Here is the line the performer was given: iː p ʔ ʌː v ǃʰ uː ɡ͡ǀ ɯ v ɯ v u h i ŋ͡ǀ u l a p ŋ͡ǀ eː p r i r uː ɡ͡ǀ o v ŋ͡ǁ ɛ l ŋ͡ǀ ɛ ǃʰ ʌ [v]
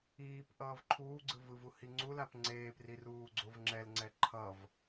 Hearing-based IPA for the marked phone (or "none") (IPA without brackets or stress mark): v